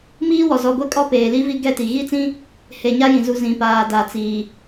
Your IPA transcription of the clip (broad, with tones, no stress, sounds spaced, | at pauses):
m iː˦ w ɔ˨ z ɔ˨ ɡʷ e˦ kʼ ɔ˦ p eː˨ l i˦ v i˦ ɡ ɛ˦ t i˨ ɣ i˦ t͡s ĩ˦ | h e˨ ɲ a˦ j ĩ˨ z u˨ z ĩ˨ p aː˨ d a˨ t͡s iː˨